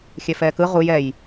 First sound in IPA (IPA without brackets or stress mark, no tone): xʲ